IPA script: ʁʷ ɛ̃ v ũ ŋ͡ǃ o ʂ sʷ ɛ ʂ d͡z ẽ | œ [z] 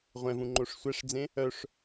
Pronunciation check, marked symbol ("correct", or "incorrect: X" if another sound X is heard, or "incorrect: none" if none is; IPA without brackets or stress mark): incorrect: ʂ